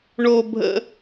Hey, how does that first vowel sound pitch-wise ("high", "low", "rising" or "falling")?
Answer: high